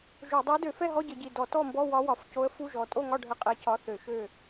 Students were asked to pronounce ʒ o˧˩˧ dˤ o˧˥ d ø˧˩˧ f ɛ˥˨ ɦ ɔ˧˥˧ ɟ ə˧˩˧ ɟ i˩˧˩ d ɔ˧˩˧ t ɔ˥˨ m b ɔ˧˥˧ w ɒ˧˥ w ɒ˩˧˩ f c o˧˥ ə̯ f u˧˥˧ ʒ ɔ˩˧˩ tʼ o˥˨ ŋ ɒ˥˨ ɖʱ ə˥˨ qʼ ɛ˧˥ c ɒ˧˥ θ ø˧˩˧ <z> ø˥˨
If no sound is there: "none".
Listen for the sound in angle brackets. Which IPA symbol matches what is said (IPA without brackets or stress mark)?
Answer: ʃ